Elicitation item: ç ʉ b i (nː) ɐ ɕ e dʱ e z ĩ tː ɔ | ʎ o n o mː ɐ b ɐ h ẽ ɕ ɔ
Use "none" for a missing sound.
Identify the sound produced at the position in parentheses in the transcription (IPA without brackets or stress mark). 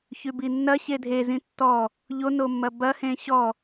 nː